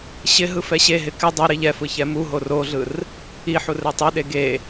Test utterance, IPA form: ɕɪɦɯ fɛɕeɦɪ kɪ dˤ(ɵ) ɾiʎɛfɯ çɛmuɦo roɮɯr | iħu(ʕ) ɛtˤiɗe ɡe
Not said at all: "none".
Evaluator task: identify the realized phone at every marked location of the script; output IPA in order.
o, r

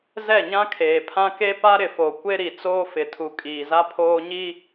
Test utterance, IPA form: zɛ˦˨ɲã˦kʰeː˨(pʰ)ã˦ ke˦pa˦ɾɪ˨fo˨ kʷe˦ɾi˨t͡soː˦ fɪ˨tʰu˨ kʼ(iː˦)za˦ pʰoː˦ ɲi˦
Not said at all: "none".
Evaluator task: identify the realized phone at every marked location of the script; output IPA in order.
pʰ, iː˨

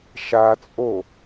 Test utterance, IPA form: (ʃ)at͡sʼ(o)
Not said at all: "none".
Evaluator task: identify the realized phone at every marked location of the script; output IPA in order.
ʃ, o

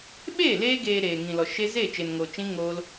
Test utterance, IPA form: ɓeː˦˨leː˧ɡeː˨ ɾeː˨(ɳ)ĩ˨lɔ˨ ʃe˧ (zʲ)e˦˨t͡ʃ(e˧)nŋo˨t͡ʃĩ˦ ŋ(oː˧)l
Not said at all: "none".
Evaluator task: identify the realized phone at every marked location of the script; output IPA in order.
ŋ, z, e˨, oː˧

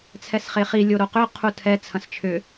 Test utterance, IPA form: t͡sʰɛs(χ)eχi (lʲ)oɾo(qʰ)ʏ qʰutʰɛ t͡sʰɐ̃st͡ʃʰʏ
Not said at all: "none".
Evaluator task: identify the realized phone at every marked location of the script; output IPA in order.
χ, lʲ, q

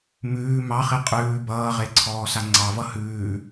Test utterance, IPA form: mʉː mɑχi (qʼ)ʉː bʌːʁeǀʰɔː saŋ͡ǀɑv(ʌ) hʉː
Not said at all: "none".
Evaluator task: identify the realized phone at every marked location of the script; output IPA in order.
qʼ, ʌ

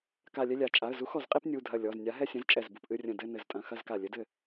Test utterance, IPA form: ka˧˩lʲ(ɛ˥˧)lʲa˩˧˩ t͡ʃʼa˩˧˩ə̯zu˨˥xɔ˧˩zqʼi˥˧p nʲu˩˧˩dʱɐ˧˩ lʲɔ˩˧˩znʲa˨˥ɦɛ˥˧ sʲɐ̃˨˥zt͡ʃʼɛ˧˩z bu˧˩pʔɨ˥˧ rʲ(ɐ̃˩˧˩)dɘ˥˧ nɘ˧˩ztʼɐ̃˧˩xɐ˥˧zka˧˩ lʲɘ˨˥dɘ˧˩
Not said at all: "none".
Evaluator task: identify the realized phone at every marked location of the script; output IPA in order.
ɛ˥˧, ɐ̃˧˩

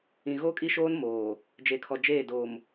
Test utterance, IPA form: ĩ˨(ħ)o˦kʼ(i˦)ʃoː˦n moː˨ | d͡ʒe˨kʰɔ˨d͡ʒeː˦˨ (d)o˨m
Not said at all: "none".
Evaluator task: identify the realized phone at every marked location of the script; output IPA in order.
ɣ, i˦, d

